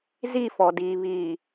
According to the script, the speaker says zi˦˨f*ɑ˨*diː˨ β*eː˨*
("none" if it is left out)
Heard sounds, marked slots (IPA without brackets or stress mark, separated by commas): ɔ˨, iː˨